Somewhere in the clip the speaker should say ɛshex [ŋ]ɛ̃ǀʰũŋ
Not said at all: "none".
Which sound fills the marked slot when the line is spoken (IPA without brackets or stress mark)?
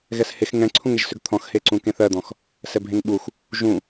ŋ